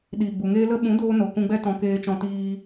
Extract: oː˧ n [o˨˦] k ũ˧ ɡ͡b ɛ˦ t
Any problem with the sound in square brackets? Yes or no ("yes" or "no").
yes